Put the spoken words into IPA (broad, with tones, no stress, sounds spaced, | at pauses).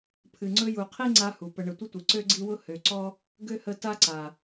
pʰ ɨ˨ ŋ͡ǀ ɵ˦ j u˨ qʰ i˥ ŋ͡ǀ a˦ h u˩ p ə˨ ɳ ə˨ tʷ ə˥ tʷ ɨ˩ ǀ ø˥ ɡ͡ǀ i˦ w ʊ˥ h ø˨ ǀ ɔ˥ | ɡ ø˥ h ə˦ t a˦ ǀ a˩